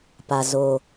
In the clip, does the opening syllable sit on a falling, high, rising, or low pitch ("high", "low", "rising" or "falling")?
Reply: low